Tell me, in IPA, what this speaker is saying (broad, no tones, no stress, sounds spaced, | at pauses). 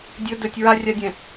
dʲ ɵ d ɵ tʲ ɹ a rʲ a dʲ ɛ̃